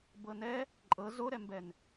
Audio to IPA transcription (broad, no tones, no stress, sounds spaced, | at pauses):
b ɤ n ɛ | ǃʼ ɤ z o ɾ ɛ m b ɛ n